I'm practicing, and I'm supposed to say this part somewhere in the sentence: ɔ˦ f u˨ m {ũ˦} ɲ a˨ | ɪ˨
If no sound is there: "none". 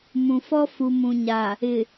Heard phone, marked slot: ũ˨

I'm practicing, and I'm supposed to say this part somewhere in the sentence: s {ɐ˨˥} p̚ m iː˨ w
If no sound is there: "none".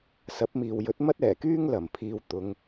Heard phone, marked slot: ɐ˨˥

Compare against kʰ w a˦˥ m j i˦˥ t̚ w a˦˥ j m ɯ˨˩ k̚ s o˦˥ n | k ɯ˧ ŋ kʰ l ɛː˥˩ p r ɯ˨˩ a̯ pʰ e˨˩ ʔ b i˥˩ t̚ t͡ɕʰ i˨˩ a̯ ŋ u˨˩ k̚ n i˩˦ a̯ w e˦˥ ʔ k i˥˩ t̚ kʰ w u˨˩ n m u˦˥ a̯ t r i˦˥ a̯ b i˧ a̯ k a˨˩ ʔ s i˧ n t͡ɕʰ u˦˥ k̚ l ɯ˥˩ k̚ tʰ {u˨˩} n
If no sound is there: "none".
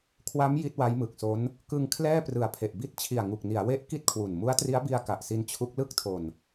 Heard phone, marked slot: o˨˩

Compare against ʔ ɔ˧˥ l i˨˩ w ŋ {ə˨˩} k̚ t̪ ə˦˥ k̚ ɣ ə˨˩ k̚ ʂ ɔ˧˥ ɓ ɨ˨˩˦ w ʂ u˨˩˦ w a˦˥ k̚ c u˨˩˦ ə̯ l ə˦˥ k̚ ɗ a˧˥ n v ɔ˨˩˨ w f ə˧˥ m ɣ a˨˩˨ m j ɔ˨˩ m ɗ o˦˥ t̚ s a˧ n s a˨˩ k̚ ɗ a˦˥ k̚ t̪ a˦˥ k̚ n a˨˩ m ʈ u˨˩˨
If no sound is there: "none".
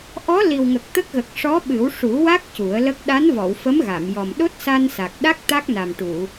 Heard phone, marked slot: ə˨˩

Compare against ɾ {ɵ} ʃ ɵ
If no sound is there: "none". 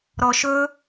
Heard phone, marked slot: ɔ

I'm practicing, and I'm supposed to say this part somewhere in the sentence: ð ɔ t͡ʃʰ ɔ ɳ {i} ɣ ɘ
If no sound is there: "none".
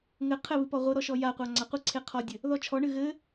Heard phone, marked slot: ɨ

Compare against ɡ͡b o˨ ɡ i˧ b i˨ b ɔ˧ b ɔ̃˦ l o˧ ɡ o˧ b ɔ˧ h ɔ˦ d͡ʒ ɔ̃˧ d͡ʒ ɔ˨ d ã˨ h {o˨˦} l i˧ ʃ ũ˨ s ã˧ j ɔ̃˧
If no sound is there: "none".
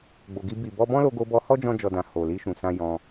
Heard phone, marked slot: o˨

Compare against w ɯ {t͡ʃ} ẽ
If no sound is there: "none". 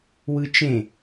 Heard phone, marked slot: t͡ʃ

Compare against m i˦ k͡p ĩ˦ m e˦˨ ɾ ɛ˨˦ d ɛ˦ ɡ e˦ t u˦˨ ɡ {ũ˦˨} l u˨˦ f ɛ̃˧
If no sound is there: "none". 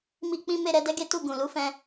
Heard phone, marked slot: ũ˨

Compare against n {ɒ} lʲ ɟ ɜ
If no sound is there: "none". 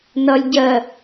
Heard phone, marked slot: ʌ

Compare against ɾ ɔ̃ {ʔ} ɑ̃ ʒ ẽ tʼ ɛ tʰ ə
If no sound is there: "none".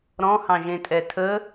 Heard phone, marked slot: h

